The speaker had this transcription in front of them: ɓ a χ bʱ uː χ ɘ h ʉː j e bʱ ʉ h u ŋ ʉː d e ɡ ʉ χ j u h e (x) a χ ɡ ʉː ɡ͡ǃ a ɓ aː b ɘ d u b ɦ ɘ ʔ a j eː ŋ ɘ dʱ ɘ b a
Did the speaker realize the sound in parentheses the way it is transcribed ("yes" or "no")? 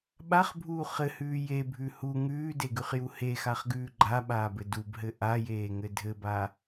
yes